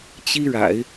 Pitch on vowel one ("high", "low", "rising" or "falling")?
high